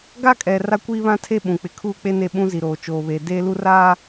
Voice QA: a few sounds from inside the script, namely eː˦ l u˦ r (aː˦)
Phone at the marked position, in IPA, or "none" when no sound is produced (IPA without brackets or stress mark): aː˦